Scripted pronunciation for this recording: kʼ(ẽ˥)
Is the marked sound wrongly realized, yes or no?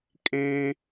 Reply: no